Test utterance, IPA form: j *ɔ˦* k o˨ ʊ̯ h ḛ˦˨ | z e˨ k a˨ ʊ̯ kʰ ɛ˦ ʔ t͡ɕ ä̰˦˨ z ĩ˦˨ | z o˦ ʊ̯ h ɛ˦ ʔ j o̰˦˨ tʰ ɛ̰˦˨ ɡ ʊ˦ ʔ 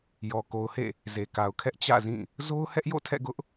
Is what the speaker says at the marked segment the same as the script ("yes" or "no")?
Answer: no